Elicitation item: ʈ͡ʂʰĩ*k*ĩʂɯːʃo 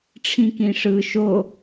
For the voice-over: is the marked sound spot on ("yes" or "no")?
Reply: yes